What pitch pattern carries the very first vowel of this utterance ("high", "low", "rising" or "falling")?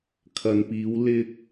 low